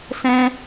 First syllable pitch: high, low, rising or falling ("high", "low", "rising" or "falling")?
high